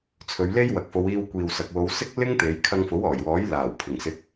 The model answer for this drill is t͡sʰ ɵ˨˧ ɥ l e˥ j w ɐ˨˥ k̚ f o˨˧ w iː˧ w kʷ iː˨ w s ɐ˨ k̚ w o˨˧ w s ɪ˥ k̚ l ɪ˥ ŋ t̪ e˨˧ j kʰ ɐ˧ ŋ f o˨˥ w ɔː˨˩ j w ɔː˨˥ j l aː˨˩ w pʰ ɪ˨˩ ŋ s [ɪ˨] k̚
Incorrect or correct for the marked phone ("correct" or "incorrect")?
incorrect